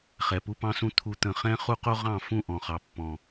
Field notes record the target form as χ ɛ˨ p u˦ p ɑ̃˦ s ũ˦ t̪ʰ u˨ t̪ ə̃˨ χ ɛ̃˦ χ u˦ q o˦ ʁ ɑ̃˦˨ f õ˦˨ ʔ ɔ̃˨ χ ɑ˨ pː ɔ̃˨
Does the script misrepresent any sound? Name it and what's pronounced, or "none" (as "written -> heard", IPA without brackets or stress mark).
õ˦˨ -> ũ˦˨